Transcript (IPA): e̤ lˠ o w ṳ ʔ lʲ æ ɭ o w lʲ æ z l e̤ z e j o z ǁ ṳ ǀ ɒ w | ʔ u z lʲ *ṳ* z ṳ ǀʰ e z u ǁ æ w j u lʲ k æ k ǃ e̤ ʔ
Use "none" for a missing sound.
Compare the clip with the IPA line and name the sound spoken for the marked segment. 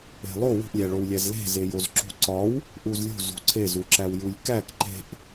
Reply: ṳ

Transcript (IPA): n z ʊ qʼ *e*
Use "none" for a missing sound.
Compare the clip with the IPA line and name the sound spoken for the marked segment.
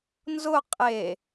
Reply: e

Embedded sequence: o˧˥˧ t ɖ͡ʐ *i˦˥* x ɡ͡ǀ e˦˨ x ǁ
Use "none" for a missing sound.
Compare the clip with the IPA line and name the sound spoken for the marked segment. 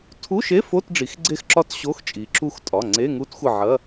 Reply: i˩˧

